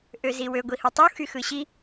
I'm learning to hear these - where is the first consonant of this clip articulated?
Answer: throat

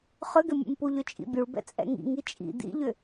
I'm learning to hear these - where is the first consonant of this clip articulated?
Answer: uvula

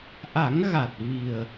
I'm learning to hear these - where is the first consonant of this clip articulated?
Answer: throat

